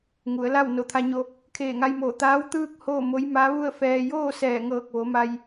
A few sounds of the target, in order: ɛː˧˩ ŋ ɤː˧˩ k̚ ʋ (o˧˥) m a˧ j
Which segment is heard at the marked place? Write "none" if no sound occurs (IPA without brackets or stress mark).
o˩˧